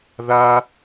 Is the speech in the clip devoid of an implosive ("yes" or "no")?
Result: yes